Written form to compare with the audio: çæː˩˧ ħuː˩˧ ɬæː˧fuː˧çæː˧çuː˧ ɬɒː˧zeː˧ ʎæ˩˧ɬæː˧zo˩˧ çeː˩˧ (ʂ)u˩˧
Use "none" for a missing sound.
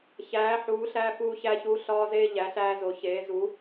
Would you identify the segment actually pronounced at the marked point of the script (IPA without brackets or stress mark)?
z